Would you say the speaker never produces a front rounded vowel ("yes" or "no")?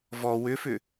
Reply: no